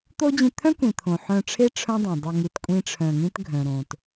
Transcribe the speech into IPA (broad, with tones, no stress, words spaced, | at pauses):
t̪o˦ d͡ʑĩ˧t̪ʰœ̃˦kʷĩ˨ t̪ʰõ˨ħœ̃˧ʈ͡ʂʰe˦ ʈ͡ʂʰœ̃˦dˤõ˨dˤœ˧ ŋi˧tkʷʼĩ˦ʈ͡ʂʰœ̃˧ŋĩ˦t ɡʱœ̃˨ɾõ˨t